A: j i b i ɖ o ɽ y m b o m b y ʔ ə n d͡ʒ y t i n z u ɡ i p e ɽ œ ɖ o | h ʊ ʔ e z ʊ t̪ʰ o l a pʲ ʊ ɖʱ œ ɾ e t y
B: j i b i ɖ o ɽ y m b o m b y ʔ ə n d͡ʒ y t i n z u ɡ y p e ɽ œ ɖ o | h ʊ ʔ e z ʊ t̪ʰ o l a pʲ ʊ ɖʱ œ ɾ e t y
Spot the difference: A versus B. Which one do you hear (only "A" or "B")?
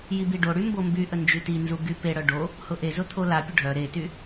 B